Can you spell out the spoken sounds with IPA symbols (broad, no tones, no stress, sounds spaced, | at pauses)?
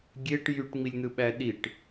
ɡʲ e ʈ j y ʈ ŋ͡m i lʲ n̪ ɯ ɓ æ ɗ i ʈ